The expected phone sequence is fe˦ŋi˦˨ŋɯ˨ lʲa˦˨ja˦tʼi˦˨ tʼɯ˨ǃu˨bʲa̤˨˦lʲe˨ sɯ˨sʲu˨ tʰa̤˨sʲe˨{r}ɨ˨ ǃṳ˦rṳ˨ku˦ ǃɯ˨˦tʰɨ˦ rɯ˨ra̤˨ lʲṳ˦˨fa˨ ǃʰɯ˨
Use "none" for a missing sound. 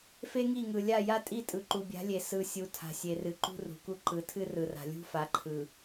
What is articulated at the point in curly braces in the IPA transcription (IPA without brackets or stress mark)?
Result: r